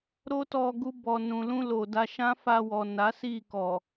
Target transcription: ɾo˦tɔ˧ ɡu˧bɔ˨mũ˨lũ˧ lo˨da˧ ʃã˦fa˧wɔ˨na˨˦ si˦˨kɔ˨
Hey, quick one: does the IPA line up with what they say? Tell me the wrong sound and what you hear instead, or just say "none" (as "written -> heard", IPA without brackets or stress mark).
m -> n